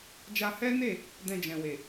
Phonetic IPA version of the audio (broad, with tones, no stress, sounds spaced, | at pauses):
d͡ʒ a˧ h ɛ˦ n e˦˨ | d ɛ̃˧ d͡ʒ ɛ̃˨ w e˨